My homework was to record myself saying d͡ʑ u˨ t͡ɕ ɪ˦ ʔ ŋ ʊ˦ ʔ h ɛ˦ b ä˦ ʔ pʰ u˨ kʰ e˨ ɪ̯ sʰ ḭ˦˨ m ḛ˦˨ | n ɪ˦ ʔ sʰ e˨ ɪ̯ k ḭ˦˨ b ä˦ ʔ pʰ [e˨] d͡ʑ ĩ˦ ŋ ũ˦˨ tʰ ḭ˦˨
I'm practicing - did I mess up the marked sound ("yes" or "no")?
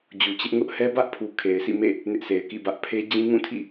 yes